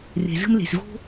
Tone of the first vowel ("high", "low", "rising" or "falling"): low